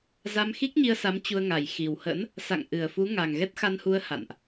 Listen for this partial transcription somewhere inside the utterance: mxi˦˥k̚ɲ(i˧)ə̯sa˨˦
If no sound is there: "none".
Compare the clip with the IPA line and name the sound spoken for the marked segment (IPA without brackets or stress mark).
i˧